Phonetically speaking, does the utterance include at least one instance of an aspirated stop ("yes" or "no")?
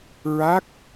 no